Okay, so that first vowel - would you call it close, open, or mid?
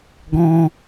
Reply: mid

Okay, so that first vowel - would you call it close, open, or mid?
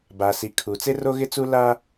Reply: open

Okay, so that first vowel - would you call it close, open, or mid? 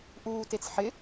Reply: close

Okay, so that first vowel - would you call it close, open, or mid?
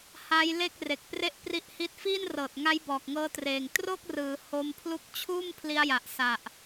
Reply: open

